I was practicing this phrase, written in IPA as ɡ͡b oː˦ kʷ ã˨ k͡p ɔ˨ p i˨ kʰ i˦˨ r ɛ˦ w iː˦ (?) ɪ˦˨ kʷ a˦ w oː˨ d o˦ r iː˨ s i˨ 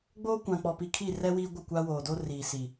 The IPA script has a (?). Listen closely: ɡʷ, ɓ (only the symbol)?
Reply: ɡʷ